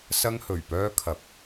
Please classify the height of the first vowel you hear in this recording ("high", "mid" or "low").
low